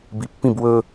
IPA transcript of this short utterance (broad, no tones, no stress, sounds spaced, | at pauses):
b i pː ĩ b w ɵ